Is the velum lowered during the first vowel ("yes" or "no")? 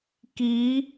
no